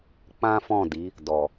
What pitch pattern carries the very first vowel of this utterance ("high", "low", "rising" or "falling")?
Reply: high